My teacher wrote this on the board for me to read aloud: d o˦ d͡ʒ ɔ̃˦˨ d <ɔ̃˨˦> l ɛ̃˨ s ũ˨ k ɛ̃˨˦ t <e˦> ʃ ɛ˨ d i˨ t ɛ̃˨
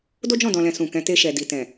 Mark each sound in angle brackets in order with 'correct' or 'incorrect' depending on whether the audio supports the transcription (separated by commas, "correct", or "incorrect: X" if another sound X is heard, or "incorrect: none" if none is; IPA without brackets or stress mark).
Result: incorrect: ɔ̃˨, incorrect: e˧